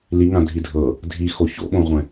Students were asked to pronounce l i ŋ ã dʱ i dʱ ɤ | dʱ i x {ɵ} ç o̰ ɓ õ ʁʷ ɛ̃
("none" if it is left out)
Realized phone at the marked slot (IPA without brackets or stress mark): o